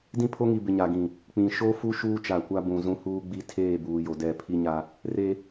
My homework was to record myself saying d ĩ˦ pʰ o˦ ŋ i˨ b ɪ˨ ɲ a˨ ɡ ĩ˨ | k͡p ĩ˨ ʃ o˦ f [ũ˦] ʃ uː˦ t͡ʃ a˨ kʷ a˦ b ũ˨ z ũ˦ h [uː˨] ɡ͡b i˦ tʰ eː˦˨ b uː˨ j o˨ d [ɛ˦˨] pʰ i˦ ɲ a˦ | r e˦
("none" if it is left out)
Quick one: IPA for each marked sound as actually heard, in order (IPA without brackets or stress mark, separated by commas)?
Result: u˦, uː˦, ɛ˦˨